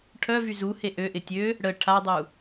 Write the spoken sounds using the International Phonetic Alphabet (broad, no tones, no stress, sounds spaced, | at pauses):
ʈʰ œ v y z u h e ʔ ø ʔ ɪ tʲ ø | ɽ ə ʈʰ a dˤ u